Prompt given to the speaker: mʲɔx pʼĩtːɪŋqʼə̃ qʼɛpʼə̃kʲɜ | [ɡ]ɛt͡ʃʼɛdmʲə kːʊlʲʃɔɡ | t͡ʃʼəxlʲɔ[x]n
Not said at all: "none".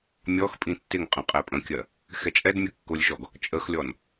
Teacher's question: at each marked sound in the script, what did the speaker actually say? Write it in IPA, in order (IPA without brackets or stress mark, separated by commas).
x, none